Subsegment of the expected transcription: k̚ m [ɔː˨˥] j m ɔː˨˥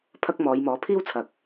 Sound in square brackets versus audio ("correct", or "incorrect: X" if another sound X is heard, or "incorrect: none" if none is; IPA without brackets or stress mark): incorrect: ɔː˨˧